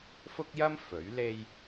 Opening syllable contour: high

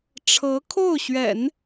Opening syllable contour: rising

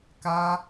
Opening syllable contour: high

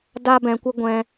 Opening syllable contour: high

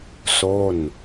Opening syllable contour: falling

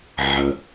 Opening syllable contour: low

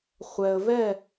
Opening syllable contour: low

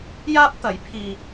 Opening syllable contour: high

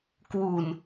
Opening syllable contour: low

